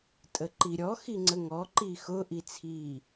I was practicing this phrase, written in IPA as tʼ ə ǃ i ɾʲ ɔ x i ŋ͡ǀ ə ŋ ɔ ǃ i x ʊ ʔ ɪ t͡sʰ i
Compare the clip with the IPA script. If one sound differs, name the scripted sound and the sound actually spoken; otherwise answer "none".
ɪ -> i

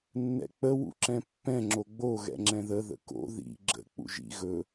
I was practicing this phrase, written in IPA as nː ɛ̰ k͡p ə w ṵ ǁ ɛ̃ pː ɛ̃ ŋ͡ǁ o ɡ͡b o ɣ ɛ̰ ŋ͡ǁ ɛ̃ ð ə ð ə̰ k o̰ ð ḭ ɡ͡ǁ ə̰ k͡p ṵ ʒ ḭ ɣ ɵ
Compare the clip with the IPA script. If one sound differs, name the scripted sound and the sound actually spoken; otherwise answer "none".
none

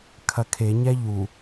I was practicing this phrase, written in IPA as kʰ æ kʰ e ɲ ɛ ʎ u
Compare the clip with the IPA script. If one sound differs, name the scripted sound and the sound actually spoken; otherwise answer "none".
æ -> ɐ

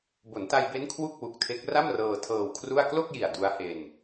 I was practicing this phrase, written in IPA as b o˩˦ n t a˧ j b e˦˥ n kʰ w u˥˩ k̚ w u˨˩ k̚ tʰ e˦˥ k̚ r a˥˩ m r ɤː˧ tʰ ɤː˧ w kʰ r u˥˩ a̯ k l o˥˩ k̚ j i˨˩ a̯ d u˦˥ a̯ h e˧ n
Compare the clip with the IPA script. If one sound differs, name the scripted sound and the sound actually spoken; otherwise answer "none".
none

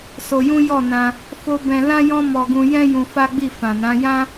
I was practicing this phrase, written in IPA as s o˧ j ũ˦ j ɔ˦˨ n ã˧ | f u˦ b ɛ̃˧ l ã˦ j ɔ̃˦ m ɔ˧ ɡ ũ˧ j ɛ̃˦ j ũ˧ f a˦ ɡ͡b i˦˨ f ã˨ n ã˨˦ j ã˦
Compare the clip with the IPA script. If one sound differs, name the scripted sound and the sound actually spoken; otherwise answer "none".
u˦ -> o˦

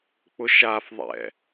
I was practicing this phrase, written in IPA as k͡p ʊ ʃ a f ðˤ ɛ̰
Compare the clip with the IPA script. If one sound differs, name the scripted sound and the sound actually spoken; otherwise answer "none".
none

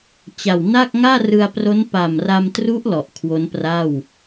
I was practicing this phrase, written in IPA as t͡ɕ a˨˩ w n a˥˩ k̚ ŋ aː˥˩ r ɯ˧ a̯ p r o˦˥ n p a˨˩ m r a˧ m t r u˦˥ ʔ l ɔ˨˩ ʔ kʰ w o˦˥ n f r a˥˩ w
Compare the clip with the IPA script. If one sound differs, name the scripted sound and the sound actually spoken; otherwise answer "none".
f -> p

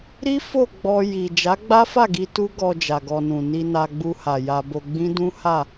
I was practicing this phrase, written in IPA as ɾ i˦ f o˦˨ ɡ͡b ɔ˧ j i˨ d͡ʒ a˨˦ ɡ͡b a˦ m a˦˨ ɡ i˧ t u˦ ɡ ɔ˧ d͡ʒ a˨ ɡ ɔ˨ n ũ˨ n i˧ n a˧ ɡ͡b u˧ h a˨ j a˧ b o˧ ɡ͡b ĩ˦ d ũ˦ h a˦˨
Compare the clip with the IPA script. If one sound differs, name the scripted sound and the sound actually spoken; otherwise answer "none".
m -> f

